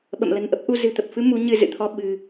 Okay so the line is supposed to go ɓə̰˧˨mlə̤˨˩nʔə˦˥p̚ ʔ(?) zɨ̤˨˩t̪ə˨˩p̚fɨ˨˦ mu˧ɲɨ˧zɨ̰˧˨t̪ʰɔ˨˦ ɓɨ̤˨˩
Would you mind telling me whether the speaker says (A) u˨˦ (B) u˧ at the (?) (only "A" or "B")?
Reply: B